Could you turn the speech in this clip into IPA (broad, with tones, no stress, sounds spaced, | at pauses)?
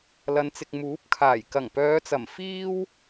l ɐ˨˧ n t͡s ɪ˨ k̚ m uː˨˥ p̚ kʰ aː˨˩ j k ɐ˨˩ ŋ p œː˨˧ t͡s ɐ˨˩ m f iː˧ w